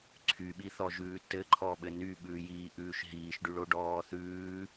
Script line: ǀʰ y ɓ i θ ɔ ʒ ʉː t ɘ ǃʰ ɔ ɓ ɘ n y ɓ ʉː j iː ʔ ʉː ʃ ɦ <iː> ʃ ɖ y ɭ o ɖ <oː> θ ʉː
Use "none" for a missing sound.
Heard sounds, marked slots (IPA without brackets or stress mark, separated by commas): iː, ɔː